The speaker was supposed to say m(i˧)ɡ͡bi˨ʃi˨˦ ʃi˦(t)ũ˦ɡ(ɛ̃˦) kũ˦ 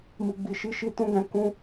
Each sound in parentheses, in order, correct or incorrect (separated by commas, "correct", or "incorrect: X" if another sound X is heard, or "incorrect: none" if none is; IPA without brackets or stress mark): incorrect: i˨, correct, incorrect: ɛ̃˧